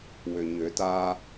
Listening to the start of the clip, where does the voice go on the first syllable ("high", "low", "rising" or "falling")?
low